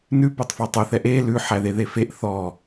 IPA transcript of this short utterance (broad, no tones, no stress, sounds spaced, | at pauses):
n ʉ p œ tˤ f o tˤ ø θ ɛ ʔ e l ʉ ħ æ ð e ð e f e ʔ θ ɔ